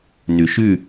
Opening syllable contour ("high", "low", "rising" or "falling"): low